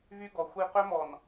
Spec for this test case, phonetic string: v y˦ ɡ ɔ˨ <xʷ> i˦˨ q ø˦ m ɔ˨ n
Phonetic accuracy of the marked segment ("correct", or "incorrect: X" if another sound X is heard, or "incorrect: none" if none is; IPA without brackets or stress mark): correct